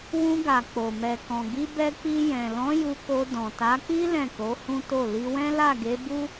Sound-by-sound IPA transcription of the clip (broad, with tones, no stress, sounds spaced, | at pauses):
w ũ˧ ɡ a˨ k͡p o˨ m ɛ˨ k ɔ̃˨ ɡ i˧ b ɛ˧ k͡p i˧ j ɛ̃˨ l ɔ̃˨˦ j u˧ k o˧ d ɔ̃˨ t a˨˦ k͡p i˦ l ɛ̃˦˨ k o˨˦ h ũ˦ t o˦˨ l i˧ w ɛ̃˦ l a˦˨ ɡ e˨˦ b u˦